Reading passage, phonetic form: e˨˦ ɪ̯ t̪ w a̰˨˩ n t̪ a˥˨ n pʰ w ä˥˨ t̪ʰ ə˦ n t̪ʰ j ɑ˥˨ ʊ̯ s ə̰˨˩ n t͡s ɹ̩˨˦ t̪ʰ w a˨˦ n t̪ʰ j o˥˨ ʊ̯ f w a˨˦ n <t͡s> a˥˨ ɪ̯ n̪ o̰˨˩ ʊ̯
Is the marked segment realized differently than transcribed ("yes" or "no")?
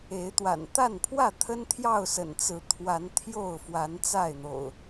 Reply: no